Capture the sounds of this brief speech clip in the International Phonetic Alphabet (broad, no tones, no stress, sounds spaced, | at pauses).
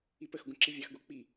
i p ə x ɡʷ ə̃ ǁ i vʲ ɑ x ɡ o k͡p i